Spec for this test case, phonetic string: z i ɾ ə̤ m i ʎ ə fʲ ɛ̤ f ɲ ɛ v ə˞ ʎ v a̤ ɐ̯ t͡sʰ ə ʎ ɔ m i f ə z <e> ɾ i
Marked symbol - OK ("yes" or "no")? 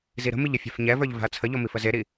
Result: yes